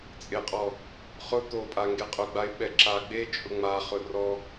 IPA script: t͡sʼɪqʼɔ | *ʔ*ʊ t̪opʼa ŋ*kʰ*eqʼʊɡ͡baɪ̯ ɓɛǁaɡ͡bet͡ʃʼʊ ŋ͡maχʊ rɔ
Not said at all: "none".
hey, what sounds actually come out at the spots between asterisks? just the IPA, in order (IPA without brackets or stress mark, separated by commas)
χ, ɡ